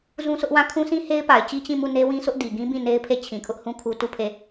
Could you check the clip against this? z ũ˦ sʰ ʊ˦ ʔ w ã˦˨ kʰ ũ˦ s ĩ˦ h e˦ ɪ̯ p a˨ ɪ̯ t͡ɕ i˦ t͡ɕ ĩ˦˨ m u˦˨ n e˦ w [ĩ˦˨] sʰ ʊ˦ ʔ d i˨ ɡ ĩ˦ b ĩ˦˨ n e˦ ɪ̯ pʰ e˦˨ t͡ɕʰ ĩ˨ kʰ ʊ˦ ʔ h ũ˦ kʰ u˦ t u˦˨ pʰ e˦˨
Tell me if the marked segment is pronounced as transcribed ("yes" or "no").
no